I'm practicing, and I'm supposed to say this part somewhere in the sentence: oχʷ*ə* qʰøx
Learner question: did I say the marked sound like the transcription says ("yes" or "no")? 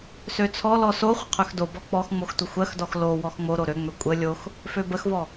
yes